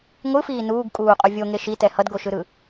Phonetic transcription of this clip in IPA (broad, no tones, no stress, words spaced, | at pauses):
ŋʷɯfiː nuːɡkʼuːqʼo vʲoŋe ʃitɛ hʌdɡoʃɯɾɯ